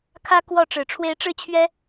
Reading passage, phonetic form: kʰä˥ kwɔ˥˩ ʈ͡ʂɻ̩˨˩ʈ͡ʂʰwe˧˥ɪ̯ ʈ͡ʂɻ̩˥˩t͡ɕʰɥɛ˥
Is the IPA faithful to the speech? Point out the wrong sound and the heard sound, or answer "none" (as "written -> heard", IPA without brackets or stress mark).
none